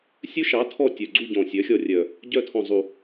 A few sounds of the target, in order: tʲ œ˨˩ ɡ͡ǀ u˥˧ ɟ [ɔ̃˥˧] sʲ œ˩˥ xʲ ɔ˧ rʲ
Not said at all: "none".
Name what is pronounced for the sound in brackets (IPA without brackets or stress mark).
ɔ̃˨˩